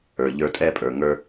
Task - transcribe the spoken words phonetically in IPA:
ə˞˨ʎə˞˧tʼɛ˦ pʼə˞˨ŋə˞˧

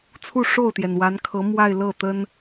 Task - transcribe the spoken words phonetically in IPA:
t͡sʰu˥˧ʂo˥˩ʊ̯t̪jɛ˩n wa˧˥nkʰɤ˧˥ mwa˥˧ɪ̯lɤ˥˩ t̪ə˥n

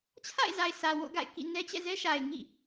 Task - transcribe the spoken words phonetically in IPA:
t͡ɕʰa̰˦˨ɪ̯za˨ɪ̯ sä˨wo̰˦˨ɡa̰˦˨ɪ̯ kḭ˦˨ nɛ˦t͡ɕɛ̰˦˨ zɛ˦ʃa˨ɪ̯ŋḭ˦˨

